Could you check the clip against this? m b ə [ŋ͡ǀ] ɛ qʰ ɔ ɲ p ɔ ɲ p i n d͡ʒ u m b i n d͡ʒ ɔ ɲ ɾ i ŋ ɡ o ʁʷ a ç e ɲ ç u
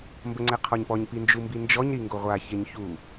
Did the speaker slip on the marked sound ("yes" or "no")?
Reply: no